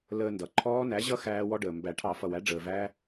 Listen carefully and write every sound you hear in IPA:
ləː˧ndʌ˩ǃʰɔː˦˥ næ˨˥ʑʌ˦˥ xæː˦˥wɔ˦˥ɖəː˩ mbæ˨˩˦ʈʰɑ˨˩˦ fʌ˩wæ˨˥ɖ͡ʐəː˩ væ˦˥

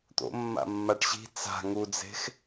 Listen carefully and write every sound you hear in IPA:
t̪o̰mːa̰mːaʈ ɕi̤ t͡sa̤ ŋud͡ze̤x

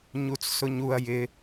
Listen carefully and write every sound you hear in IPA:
ɲut͡ssʊɲuɐ̯ jɪ

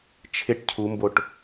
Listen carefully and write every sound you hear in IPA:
t͡ʃʰɪʈ cʰumboʈ

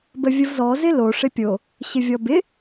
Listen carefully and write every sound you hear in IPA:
bəvʲəvzɔ zɪlo ʂɪpʲo | ɕɪvʲɔbɪ

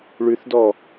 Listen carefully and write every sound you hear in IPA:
ɭʉθdɔ

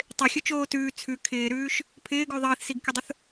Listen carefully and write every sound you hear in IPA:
tˤɪxʲʊt͡ʃoː tʉː t͡sʰʉ kʰɪːɾʉːʃ | pʰɪːɡʉ ðˤiːθsiɡkʲʊdˤʊθ

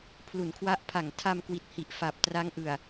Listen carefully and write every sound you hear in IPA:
pʰlu˩˦nkʰwa˦˥ʔpʰa˨˩ŋ tʰa˧mkwi˨˩t̚hi˨˩ʔ fa˨˩p̚tra˦˥ŋʔɯ˨˩a̯

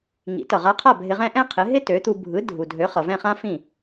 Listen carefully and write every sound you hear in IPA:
ŋḭ˩˥tʌ˩ʁa˧qʰa˥˩ bʱɪ˧ʁɛ̃˥ ʔɛ̃˥qʰɪ˩˥ɦɪ˥ tø˩˥t̪u˧ bʱɯ˩˥ dʱu˩dʱø˩˥ χʌ˩vɛ̃˥˩χã˥ fĩ˥˩

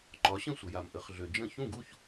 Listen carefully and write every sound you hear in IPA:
ǃɒ˩˥ɕə̃˥˩sʷə˩ja˩m ʔə˩˥χɮø˩d͡ʒə̃˥˩ çũ˥˩ɡu˥˩ç

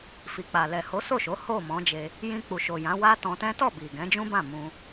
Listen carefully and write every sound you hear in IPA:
fi˨k͡pa˨ lɛ˨ho˨˦ so˦˨ʃo˨˦ ho˦˨mɔ̃˨˦d͡ʒe˧ | jĩ˧k͡pu˨ʃo˨ jã˨˦wa˦tɔ̃˧tɛ̃˦ tɔ˦˨bi˨ ɡɛ̃˨˦d͡ʒũ˦bã˦˨ mũ˧

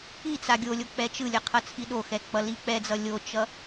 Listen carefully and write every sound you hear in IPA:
it͡sa ɡʲolʲo k͡pɛt͡ʃɯlʲʌ qʰʌt͡sʰiɗoxɛ k͡pʌlik͡pɛd͡zʌ lʲot͡ʃʌ

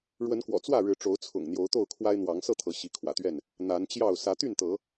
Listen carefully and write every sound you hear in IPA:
ɻwə˨˦nkwɔ̰˨˩ t͡swä˥˨ɻɻ̩˨˦ ʈ͡ʂo˨˦ʊ̯t͡sʰʊ̰˨˩ŋ n̪jo˨˦ʊ̯t̪o˥˨ʊ̯kʰwa˦ɪ̯ n̪wɑ˨˦ŋ sɤ˥˨t̪ʰɤ˨˦ ɕi˨˦kʰwä̰˨˩t̪ɥɛ˥˨n | n̪a˨˦nt͡ɕjɑ˥˨ʊ̯ sä˨˦t̪y˥˨nt̪ɤ˨˦

